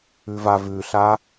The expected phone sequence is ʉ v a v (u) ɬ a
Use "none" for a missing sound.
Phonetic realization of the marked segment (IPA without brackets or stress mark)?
ʉ